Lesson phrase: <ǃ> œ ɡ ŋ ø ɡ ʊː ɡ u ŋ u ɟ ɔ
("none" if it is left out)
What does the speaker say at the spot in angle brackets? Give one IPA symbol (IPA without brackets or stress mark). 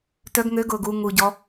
t